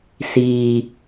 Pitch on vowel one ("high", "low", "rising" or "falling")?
low